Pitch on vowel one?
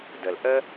low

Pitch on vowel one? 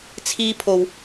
high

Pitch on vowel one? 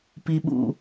low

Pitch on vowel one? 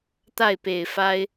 falling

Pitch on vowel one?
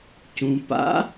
low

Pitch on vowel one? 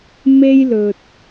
high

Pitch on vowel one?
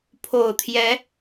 low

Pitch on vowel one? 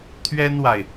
high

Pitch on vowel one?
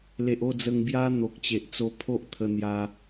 low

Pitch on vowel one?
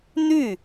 falling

